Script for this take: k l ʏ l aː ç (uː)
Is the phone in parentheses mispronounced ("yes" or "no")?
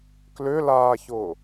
yes